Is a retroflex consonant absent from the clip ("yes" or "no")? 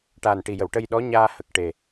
no